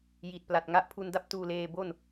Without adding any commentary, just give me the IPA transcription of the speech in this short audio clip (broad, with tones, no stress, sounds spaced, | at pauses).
j i˨˩ t̚ p l a˨˩ t̚ ŋ a˦˥ ʔ pʰ u˧ n d a˥˩ p̚ t uː˧ l eː˧ b o˥˩ n